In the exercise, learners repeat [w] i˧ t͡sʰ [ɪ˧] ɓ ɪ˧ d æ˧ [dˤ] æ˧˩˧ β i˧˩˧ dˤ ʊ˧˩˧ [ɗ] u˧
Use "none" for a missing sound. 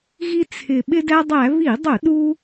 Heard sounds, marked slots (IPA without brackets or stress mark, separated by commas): ɣ, ɪ˨˩, dˤ, ɗ